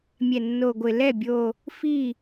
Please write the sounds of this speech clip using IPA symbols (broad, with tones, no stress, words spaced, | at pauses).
mʲɛ˨˩nːo˨˩ɡʷɪ˨˩ lɛ˥˩bʲo˨˩ | fi˥˩